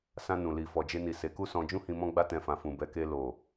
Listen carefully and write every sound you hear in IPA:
s ã˧ n ũ˨ l i˨ f ɔ˨ d͡ʒ e˧ n i˨ s e˨˦ k u˦ s ɔ̃˧ d͡ʒ ũ˦ h ĩ˧ m ɔ̃˦ ɡ͡b a˦ t ɛ̃˧ f ã˨ f ũ˨ b ɛ˨˦ k e˧ l o˨

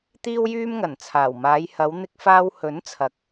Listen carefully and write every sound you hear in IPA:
t̪ iː˥ w j yː˥ m ŋ ɐ˨˩ n t͡sʰ aː˨˩ w m aː˨˧ j h ɐ˨˧ w n̪ ɪ˧ k̚ f aː˧ w h ɵ˨˥ n t͡sʰ ɐ˨˥ k̚

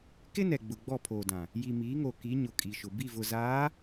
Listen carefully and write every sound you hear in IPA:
k ɪ˦ n ɛ˨ ɡ͡b ʊ˨ ɡ͡b ɔ˦˨ pʰ oː˨ d ã˨ | j i˨ m iː˨˦ ŋ o˨ k i˨˦ ɲ ʊ˨ kʼ i˨ ʃ ʊ˨ b i˦˨ v ʊ˨ z aː˨˦

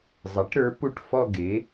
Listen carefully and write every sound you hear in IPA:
zˤ e˩˥ ʈ ɾ ə˞˩˥ p u˥˧ ʈ f ɔ˥˧ ɡ e˩˥

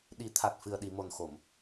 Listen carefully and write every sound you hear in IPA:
ɗ i˨˩˦ t̪ʰ a˨˩ t̚ f ɨ˨˩ ə̯ ɗ i˨˩˨ m o˨˩ n x o˨˩˨ m

